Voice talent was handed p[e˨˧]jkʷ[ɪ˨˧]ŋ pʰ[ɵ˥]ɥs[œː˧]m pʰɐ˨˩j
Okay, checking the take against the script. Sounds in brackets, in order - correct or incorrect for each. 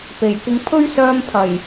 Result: incorrect: e˨˩, incorrect: ɪ˧, correct, correct

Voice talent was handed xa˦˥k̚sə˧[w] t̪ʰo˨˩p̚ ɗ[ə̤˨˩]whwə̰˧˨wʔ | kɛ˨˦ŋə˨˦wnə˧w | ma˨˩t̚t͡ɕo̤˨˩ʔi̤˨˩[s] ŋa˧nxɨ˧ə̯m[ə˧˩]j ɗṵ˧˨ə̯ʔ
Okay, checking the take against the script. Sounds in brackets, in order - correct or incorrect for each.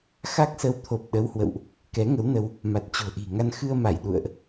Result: correct, incorrect: ə˨˦, incorrect: none, incorrect: a˧˩

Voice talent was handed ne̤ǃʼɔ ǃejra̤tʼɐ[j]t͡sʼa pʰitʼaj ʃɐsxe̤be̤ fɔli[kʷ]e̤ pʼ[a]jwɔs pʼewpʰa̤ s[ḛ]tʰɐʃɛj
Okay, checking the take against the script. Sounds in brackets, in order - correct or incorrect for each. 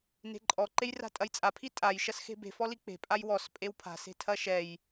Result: correct, incorrect: k͡p, correct, incorrect: e̤

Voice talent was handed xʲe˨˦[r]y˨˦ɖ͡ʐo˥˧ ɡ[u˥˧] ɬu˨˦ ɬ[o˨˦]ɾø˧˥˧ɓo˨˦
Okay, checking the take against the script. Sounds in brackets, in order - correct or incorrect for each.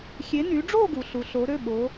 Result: incorrect: n, incorrect: u˨˦, correct

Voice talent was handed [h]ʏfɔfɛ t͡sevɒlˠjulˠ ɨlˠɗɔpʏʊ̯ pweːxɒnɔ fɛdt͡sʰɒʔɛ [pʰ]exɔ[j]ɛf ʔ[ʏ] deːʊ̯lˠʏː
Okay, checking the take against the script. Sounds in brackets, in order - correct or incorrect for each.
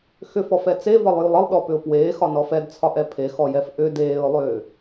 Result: incorrect: x, correct, correct, correct

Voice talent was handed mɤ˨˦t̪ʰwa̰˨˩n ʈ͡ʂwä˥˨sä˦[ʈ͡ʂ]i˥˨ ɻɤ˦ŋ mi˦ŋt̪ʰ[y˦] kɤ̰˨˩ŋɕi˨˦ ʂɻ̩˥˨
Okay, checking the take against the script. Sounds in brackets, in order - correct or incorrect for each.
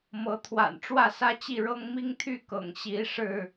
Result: incorrect: t͡ɕ, incorrect: y˥˨

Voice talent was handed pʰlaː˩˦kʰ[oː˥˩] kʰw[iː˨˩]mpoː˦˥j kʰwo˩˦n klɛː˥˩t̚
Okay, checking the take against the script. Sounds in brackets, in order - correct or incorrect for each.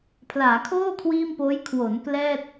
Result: correct, incorrect: iː˥˩

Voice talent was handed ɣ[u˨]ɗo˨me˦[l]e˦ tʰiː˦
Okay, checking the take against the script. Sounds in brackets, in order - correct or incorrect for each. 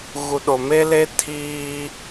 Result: correct, correct

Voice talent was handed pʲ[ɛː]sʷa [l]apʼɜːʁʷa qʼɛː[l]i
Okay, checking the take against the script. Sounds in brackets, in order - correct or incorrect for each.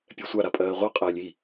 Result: incorrect: ɛ, incorrect: ɾ, incorrect: lʲ

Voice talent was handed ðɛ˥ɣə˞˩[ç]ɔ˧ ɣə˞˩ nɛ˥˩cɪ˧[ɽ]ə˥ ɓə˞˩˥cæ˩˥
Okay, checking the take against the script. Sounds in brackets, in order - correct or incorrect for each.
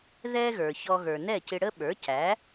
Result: correct, correct

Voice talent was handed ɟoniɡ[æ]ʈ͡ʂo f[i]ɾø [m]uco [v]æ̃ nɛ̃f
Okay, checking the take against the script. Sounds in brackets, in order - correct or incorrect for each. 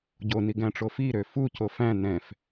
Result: incorrect: æ̃, correct, incorrect: f, incorrect: f

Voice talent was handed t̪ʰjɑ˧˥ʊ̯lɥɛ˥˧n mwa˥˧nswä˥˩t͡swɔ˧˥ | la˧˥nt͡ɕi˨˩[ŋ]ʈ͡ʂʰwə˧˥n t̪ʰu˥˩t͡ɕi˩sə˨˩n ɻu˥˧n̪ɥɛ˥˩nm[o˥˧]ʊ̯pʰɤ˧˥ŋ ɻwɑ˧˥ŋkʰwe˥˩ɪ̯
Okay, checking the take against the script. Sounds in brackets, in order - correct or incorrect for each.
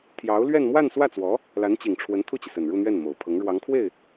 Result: correct, incorrect: o˨˩

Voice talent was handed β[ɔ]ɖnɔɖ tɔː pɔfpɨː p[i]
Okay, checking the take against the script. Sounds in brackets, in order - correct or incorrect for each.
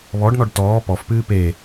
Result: correct, incorrect: e

